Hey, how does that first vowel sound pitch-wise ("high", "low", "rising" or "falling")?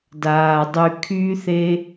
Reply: low